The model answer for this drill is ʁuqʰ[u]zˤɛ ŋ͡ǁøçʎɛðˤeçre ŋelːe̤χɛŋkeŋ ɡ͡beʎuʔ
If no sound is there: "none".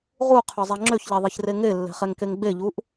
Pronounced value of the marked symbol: ø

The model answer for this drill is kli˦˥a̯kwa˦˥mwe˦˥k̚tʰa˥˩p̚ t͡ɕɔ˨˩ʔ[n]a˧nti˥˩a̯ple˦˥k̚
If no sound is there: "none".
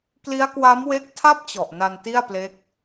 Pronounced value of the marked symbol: n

